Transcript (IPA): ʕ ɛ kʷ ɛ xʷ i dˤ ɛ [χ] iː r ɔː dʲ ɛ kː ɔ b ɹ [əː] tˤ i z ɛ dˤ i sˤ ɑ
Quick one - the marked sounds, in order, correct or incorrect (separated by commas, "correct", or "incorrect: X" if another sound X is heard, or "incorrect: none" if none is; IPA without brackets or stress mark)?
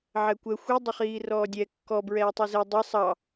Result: correct, incorrect: ɛː